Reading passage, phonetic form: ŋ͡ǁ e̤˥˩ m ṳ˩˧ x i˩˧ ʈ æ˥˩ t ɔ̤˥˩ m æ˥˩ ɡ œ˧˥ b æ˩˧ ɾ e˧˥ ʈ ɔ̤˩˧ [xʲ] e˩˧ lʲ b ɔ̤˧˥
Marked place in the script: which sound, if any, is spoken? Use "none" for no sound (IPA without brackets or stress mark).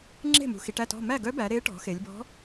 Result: x